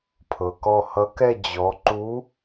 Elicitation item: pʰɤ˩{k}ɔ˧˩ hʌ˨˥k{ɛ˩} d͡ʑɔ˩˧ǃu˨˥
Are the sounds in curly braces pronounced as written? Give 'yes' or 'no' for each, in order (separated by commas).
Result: yes, no